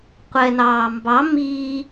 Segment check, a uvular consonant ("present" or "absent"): present